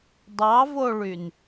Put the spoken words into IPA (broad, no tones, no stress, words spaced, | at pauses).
dˤɑvoɭyn